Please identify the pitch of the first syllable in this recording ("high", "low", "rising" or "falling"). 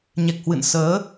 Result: low